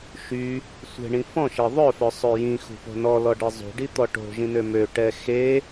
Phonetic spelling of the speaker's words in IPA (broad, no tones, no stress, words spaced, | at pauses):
ʃy | sʷe̤ɳĩ fɔ̃ʃe ðˤœfœsˤø jĩxṳpo̤ nɔlɔɖe zˤṳɖit̪ɔ ʈo̤ʒĩnø møʈɛ xe